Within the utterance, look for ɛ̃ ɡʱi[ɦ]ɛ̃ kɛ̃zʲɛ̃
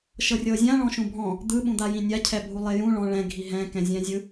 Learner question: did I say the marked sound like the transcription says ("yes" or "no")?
yes